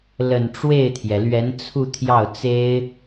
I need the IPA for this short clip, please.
l ə˨˩ n ʈ͡ʂ w e˥˩ ɪ̯ t̪ʰ j ɛ˩ l ɥ ɛ˧˥ n t͡sʰ u˥˧ t̪ʰ j ɑ˥˩ ʊ̯ t͡s e˥ ɪ̯

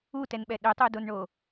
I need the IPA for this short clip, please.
u t ɛ n ɓ ɛ ɗ ʏ tˤ u d o n ɳ o

